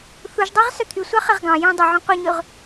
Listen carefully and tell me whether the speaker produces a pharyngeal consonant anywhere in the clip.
yes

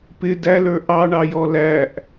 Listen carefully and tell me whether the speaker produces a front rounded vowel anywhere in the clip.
no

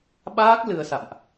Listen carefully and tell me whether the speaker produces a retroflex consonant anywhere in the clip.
no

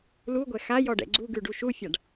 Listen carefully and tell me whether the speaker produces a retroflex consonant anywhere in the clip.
yes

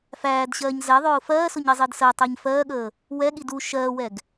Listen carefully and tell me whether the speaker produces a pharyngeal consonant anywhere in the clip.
no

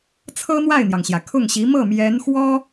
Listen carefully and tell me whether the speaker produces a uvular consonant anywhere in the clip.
no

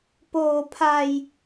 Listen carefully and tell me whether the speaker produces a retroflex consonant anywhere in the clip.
no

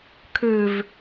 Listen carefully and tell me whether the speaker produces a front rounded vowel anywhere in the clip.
yes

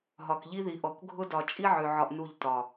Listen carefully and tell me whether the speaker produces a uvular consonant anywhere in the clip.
no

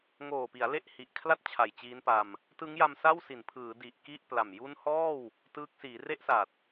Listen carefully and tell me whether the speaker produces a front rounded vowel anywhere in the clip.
no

